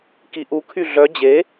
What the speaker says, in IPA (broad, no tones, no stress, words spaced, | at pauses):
kiʔu kʰyɮœ d͡ʑe